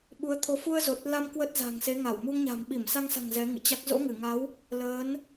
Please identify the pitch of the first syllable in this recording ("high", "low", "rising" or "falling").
rising